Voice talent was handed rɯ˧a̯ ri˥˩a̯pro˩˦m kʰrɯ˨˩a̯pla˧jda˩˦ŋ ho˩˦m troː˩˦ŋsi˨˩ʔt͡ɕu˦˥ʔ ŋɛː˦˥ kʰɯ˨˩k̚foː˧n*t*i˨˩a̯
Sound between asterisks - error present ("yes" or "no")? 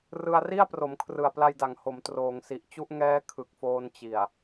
yes